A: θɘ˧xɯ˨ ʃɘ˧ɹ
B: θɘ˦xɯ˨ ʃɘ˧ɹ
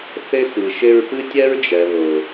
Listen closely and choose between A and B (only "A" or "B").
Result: B